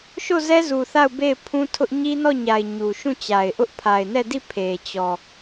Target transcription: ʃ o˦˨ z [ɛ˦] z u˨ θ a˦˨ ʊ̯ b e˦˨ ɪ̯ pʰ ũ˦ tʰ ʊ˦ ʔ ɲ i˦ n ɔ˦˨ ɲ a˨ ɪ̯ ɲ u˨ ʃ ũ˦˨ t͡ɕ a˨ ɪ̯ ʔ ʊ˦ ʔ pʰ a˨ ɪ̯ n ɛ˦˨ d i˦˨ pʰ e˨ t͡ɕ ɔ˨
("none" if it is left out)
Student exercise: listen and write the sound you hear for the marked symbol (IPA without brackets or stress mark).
ɛ˦